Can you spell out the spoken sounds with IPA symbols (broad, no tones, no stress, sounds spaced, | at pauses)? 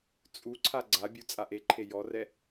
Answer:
t͡sʼ u ǀʰ a ɡ͡ǀ a bʲ u t͡sʼ a ʔ e ǃʰ e j ɔ r ɛ